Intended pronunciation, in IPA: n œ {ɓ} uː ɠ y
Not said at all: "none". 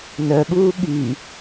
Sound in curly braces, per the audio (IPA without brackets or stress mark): ɓ